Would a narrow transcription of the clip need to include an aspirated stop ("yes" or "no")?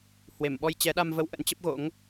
no